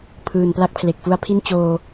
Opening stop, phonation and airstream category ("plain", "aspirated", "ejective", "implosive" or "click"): aspirated